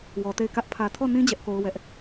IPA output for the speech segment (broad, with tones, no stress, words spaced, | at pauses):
wɔ˨te˦˨ɪ̯kä˦ʔ pʰä˨tʰɔ˦˨nĩ˦ d͡ʑɛ˦ʔko˦ʊ̯ wɛ˦ʔ